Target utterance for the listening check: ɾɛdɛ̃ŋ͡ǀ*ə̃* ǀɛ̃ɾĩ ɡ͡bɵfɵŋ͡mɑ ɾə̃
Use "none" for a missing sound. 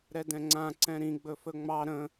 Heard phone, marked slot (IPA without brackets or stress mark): ã